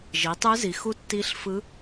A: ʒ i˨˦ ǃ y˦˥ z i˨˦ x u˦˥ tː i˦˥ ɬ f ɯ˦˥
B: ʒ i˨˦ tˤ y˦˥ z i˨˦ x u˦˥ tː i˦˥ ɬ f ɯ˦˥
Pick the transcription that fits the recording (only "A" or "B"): B